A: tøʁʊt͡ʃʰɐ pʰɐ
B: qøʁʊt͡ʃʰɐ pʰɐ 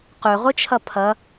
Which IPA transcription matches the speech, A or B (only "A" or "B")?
B